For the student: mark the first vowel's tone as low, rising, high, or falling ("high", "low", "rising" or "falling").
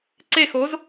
falling